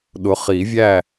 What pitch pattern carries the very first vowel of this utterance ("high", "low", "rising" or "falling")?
rising